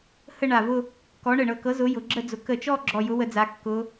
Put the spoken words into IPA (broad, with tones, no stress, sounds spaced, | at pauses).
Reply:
h ə˥˧ ɳ a˧˩ v ʊ˥˧ | k ɔ˨˥ ɳ ə˧˩ ɳ ɤ˧˩ k ɤ˨˥ z ʊ˨˥ j ʊ˩˧ ɡ͡ǁ ə˥˧ d͡z ʊ˨˥ k ə˧˩ t͡ʃ ɔ˥˧ ɡ͡ǁ ɔ˧˩ j ʊ˨˥ w ə˩˧ d͡z a˩˧ kː ʊ˩˧